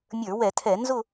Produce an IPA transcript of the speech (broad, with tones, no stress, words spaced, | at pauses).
mʲə˞˧˩˧wɛ˧˩˧tʰɛ˧˩˧ nzʊ˥˨